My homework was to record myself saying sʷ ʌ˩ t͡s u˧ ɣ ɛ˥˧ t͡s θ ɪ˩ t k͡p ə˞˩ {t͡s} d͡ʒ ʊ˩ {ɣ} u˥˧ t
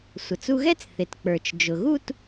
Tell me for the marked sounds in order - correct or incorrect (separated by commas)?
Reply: incorrect, correct